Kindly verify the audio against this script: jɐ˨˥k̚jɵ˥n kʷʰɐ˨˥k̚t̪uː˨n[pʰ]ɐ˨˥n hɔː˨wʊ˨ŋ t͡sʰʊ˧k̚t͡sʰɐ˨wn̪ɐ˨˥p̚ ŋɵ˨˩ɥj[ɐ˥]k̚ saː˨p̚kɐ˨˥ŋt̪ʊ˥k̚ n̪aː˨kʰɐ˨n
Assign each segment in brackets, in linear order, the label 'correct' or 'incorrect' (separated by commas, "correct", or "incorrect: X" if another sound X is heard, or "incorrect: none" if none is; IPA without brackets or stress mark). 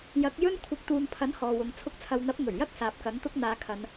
correct, correct